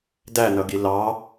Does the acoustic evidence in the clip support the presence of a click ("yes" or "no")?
no